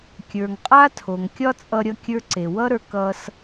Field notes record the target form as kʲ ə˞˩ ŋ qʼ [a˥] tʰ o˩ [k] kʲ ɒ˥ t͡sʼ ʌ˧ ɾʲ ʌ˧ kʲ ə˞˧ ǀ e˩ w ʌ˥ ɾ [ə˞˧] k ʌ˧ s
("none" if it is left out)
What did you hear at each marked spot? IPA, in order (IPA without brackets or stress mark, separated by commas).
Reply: a˥, ŋ, ə˞˧